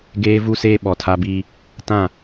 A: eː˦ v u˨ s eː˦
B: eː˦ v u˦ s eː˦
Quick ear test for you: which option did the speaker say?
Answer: B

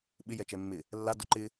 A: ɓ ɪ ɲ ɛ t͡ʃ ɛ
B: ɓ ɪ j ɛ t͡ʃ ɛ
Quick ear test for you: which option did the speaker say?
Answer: B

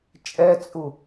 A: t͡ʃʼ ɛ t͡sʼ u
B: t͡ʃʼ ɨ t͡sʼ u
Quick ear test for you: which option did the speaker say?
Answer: A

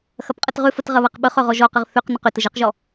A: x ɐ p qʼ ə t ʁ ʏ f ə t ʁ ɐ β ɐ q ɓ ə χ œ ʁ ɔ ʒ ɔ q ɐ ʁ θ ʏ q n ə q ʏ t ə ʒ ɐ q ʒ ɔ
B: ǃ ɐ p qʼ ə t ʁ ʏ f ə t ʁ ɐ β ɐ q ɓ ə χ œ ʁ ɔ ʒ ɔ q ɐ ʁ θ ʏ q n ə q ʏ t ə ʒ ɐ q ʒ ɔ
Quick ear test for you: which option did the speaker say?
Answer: A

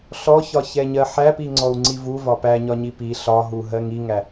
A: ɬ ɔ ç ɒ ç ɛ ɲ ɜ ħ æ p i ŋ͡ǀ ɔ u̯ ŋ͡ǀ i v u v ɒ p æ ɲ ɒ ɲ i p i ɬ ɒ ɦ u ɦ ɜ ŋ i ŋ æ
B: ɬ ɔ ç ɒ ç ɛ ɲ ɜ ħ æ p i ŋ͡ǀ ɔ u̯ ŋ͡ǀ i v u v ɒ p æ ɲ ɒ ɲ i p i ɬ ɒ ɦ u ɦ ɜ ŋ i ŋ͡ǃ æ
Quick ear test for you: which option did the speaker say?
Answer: A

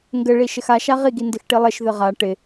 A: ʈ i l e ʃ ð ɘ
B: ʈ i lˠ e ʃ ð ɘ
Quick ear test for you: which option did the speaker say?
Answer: B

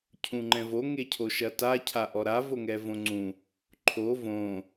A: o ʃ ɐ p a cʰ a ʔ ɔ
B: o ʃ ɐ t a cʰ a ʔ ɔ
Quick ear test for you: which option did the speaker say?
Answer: B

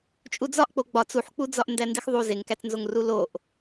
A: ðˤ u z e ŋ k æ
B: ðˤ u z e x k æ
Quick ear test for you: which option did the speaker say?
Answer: A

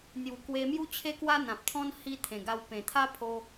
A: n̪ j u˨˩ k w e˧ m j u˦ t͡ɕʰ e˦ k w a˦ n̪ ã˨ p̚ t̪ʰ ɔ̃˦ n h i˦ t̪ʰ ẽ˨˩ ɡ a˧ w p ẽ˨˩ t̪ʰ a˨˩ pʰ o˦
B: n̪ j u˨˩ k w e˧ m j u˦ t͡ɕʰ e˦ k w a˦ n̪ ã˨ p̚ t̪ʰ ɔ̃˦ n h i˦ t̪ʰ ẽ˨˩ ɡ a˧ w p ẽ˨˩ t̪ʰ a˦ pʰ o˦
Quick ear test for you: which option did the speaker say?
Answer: B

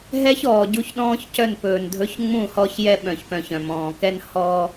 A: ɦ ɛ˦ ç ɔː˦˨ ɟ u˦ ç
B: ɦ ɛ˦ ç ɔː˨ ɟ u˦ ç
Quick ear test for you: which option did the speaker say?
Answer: B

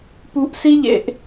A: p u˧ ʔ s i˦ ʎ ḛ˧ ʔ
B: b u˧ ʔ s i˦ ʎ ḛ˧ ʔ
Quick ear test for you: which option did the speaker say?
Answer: A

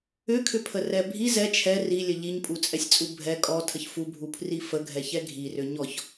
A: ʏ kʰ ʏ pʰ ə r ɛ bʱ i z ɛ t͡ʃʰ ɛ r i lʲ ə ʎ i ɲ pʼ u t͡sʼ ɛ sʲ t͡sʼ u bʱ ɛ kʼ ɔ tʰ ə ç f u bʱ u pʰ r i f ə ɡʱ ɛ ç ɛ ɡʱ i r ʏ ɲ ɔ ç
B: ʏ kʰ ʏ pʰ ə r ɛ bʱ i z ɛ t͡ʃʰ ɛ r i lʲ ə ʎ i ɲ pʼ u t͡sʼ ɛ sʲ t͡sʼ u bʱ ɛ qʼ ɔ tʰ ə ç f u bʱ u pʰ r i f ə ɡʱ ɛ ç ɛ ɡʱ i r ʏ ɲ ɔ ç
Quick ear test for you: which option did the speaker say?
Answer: A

